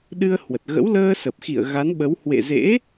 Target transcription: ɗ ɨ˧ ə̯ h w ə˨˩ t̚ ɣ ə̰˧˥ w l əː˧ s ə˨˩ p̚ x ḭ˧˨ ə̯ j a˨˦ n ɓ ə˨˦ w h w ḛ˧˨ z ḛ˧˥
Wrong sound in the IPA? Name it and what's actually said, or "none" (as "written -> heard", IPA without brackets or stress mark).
j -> ɣ